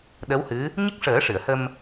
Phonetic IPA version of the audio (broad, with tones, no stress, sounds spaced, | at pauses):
ɗ ə˧˥ w h ɨ˧˥ | ɲ ə˦˥ k̚ ʂ əː˨˩˦ ʂ ɨ˨˩˨ ə̯ h ə˧ m